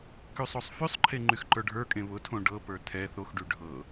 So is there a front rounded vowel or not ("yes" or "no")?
yes